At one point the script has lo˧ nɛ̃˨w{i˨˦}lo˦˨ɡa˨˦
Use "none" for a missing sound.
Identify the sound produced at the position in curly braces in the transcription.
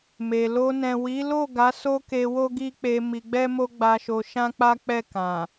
i˨˦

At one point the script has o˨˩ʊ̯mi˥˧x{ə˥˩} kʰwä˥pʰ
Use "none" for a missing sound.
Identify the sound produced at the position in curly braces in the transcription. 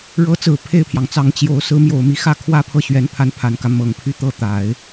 ä˥˩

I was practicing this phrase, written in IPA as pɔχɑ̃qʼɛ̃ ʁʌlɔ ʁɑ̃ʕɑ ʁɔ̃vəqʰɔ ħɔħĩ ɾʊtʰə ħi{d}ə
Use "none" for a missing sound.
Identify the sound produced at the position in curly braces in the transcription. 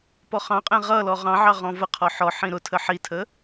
tʰ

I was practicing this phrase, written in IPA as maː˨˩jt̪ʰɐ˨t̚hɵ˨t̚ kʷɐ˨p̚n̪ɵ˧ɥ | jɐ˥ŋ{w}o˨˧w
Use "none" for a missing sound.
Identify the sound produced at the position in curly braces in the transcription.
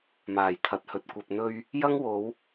w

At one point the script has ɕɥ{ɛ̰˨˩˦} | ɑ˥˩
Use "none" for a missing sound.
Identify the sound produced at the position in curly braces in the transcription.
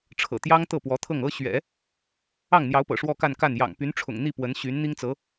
ɛ̰˨˩˦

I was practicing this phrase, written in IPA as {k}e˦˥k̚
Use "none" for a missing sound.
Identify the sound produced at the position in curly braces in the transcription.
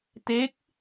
t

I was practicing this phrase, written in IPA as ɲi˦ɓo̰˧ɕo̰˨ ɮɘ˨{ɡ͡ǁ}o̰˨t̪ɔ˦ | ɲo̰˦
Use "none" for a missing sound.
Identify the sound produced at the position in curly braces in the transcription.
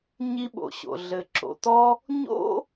ǁ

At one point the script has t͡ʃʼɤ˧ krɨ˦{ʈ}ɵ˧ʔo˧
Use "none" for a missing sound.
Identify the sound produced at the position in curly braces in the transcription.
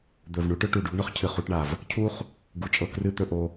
t̪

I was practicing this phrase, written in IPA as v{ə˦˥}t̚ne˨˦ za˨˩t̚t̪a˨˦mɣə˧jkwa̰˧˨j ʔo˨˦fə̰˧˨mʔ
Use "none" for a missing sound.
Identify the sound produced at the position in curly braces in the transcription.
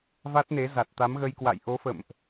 a˦˥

